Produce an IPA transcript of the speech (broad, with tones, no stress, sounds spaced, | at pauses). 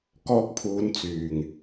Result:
k ɔː˧ k̚ pʰ uː˨˧ n t͡s yː˨˩ ŋ